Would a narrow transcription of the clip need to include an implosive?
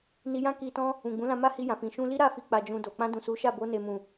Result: no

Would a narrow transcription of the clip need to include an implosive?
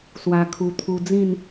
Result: no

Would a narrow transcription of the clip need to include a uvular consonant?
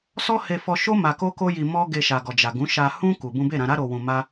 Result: no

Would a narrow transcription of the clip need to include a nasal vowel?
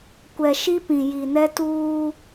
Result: yes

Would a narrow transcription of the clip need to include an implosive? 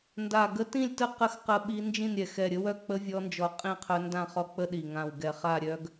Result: yes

